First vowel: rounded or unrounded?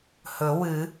rounded